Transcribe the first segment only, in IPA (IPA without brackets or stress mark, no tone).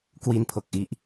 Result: k